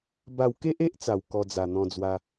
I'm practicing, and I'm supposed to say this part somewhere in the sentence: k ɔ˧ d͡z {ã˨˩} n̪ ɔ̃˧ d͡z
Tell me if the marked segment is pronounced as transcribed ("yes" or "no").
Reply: no